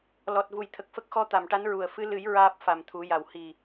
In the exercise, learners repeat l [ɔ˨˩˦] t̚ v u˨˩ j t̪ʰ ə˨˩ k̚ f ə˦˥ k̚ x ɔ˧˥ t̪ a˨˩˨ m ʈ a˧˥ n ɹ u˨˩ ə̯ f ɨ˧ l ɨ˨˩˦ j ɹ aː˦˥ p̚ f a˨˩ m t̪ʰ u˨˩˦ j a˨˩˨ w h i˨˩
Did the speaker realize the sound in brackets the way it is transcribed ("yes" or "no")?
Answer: no